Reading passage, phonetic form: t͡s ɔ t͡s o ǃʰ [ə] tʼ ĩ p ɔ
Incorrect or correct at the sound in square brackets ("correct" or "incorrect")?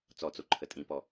correct